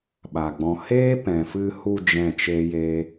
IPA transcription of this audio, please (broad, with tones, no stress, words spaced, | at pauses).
ɓa˨ɡ͡bɔ̃˧ heː˦pɛ̃˨fɨ˧hu˧ d͡ʒɛ̃˦˨t͡ʃe˦je˦